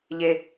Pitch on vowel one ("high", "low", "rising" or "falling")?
low